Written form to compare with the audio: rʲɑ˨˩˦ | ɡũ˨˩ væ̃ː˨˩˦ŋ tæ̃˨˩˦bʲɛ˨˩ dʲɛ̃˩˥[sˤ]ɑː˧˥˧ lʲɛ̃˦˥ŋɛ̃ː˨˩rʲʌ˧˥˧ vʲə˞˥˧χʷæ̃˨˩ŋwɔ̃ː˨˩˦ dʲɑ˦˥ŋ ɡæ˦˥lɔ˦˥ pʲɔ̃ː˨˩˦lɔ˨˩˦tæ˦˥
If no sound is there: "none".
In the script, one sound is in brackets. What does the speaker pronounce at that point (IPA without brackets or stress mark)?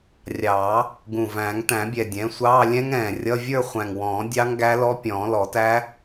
sʷ